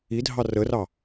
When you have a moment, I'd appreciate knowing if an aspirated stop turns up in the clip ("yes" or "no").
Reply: no